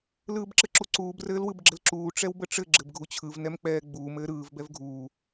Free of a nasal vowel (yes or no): yes